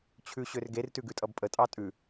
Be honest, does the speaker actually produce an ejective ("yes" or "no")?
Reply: yes